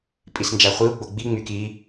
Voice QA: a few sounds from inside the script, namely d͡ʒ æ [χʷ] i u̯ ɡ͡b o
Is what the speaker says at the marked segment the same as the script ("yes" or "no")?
yes